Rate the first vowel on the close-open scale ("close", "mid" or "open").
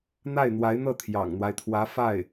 open